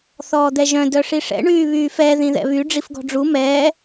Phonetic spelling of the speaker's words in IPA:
θ ɔː d̪ ɛ ʒ œ̃ d œ ʂ i ʂ ɛ̰ ɳ yː β yː f ɛ ð ĩ ð ɛ̰ β y ɖ͡ʐ i f ɡ ɔ̤ ɖ͡ʐ u m ɛː

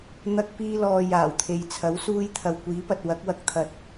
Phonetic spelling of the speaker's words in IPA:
n̪ ɐ˧ k̚ p iː˧ l ɔː˨ j aː˨˩ w t̪ʰ e˨ j t͡sʰ ɐ˨˥ w s uː˧ j t̪ʰ ɐ˨ w kʷ iː˨˥ p ɐ˨ t̚ w ɐ˨˥ k̚ w ɐ˨˥ k̚ t̪ʰ ɐ˨ t̚

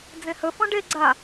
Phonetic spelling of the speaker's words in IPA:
d͡z ẽ h ɵ f ɔ̃ ɖ e ɡ͡ǀ a

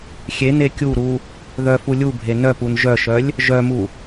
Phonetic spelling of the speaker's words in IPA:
xʲ e n e kʲ u ɾ u | ð œ f u lʲ u bʱ e n œ p u n ʒ œ ʃ œ lʲ | ʒ œ m u

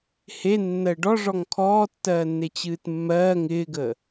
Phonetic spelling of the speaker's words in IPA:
h e nː ɜ ɖ ɔ ʐ ɔ ŋ kʰ ɔː tː ɜː nː e t͡ɕ ɨː t mː ɜː ŋ ɪː ɡ əː

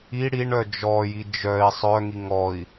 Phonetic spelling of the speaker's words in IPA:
i ɽ i ɳ œ d͡ʒ ɔ j i d͡ʒ œ i̯ sˤ œ ŋ i ŋ ɔ i̯

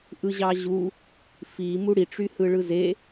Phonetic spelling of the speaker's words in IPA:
ʔ ɯ ʑ ɑ ʑ u | f i m u ɽ i ʈ͡ʂ y h ɯ ɭ ɯ z e

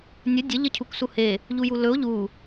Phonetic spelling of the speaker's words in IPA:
nʲ ɵ dʲ ə ʎ ə cʰ u k s u h e | ʎ u j u l ɵ o̯ ʎ u

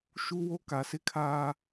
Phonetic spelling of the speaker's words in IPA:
ʃ u˦ w o˦ k a˨ s ɪ˦ kʰ aː˦

